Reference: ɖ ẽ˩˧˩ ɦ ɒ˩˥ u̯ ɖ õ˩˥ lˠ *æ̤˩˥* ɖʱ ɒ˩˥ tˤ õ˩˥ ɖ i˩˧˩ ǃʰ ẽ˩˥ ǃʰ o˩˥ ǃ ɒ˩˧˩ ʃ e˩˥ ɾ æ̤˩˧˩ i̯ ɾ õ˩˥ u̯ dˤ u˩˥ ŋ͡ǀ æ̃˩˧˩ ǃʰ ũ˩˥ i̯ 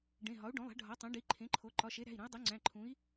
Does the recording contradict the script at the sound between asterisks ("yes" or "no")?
no